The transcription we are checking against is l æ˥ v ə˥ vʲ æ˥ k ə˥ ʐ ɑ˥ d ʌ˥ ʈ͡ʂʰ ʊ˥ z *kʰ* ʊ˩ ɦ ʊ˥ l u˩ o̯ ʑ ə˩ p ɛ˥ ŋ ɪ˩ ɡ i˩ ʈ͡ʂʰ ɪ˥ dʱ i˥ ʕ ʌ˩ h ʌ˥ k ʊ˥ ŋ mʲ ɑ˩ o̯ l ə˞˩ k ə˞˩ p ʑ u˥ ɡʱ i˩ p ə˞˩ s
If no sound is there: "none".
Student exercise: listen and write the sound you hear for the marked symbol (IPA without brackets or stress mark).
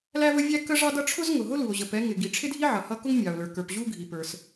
ŋ